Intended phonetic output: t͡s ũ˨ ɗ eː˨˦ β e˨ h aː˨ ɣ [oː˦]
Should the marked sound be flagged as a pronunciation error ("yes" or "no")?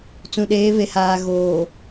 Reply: yes